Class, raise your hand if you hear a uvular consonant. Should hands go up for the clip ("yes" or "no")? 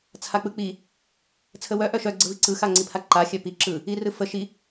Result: no